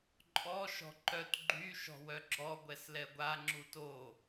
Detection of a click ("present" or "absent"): present